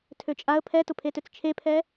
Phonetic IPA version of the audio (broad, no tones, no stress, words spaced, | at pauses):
tʰøt͡ʃʼaə̯ pʰɛtʊpʰetøt͡s t͡ʃʰepʰɛ